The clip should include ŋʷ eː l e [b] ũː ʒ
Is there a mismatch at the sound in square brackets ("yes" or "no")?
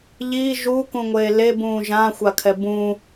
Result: no